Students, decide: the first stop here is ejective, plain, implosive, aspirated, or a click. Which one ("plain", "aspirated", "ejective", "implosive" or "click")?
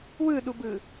implosive